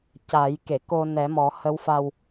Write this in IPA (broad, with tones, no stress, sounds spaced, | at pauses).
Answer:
c a˨˩˦ j k e˨˩˨ k o˧ n ɛ˨˩˦ m ɔ˨˩˦ h ə˧˥ w f a˧ w